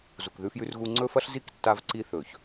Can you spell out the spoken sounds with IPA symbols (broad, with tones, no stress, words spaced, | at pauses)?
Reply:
zu˨kðʉ˦fjʉ˦rɣu˦ ŋ͡ǀɵ˦fɐ˦ɬ zi˦k tːa˦vǀi˦ θɵ˨ç